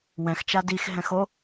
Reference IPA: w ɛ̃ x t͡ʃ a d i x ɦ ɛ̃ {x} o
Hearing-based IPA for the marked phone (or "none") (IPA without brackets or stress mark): x